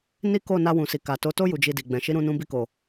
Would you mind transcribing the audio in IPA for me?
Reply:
n i˦ k o˦˨ n a˧ w ũ˨ s i˨ k a˨ t o˨˦ t o˦ j u˧ d͡ʒ i˧ d i˨ ɡ͡b ɛ̃˨ ʃ i˨˦ ɾ ũ˧ n ũ˧ b i˧ k o˨

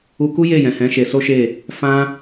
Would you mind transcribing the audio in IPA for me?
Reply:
u˧ k u˦ j e˦˨ j ɛ̃˨ h ɛ̃˨˦ ʃ e˧ s o˦ ʃ e˦˨ | f ã˦

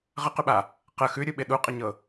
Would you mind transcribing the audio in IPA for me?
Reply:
ʁ ə q ʉ ɓ a | q ə x ʉ ɾʲ u ɓ ɪ ɗ u qʼ ɪ ɲ ɤ

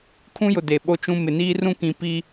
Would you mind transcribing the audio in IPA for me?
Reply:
kʰ ũ˦ j ʊ˨ d e˨ ɓ o˦ t͡ʃ ũ˦ m ɪ˨ n iː˦ r ũ˦ k ĩ˨ p i˦

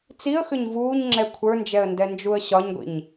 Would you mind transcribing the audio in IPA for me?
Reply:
t͡s i ə̯ x ʏ ɲ v uː ɲ ŋ͡ǁ ɛ kʷʰ ə˞ n d͡ʒ ɛ ə̯ n d ɛ n d͡ʒ u ə̯ ɕ ɒ ɲ ɡʷ ḭ ɲ

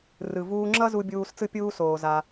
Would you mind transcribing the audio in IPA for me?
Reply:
r ɯ˩ v uː˧ ŋ͡ǁ ʌ˥ z u˧ bʲ uː˧ s t͡s ɯ˥ pʲ uː˥ s oː˩ z a˩

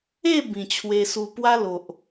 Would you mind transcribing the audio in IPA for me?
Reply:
e˥˧ b ĩ˨˩ t͡ɕʰ w e˧ s u˧ p w a˦ l o˨ ʔ

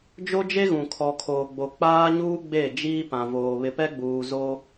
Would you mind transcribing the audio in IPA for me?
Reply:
d͡ʒ o˦ d͡ʒ e˦ ɣ ũ˨ kʰ ɔ˨ kʰ oː˨ ɡ͡b o˨ k͡p aː˦ ɲ uː˦ ɡ͡b e˦˨ d͡ʒ iː˦ p ã˨ v oː˨ β ɪ˨ p ɛ˦ ɡ͡b uː˨ z oː˦

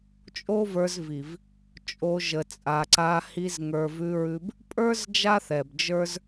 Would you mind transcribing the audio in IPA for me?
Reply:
t͡ʃʼ o˦ v ə˞˧ z v i˨ v | t͡ʃʼ o˧ ʒ ə˨ t͡sʼ a˨ ǀ a˧ h i˧ z ŋ ə˞˨ v ʉ˧ ɹ ʉ˧ b | pʼ ə˞˦ z d͡ʒ a˦ θ ɛ˨ b d͡ʒ ə˞˦ z

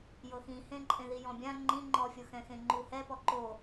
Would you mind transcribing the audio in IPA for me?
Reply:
j ɤ x ĩ h ẽ ǃʼ ẽ ð i j ɔ̃ bʲ ã ŋ͡ǃ ĩ ŋ͡ǃ ɔ fʲ o x ɛ̃ x ẽ ŋ͡ǃ u h ɛ p ɔ ǃ o

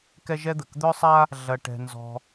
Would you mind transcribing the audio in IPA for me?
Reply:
k ɛ˥ ʒ ɛ˥ d̪ ə˩ k d̪ œ˥ sˤ a˥ | ɮ ɐ˧ ʈ ɛ̤˧ n z ɔ̤˧

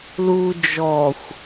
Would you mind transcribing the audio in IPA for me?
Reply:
l u d͡ʒ ɔ xʷ

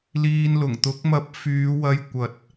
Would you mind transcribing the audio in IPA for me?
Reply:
l iː˧ n l ʊ˨˩ ŋ t̪ ʊ˨˥ k̚ m ɐ˧ p̚ f yː˨˧ w ɐ˧ j kʷ ɐ˨ t̚

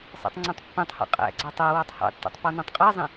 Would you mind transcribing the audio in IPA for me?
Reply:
sˤ æ̰ tˤ ŋ͡ǀ ɛ̃ tˤ pː ĩ tˤ h ɑ̰ qʼ æ̰ ɡ͡ǀ ɑ tˤ æ w ɑ tˤ h ɑ̰ tː ɑ̰ tˤ p ɔ n ɛ̃ tˤ qʼ æ zˤ ĩ

